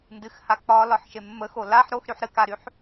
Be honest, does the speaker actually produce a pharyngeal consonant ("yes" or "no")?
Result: yes